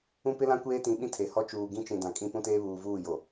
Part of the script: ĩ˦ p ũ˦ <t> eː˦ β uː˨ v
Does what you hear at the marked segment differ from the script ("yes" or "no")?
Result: no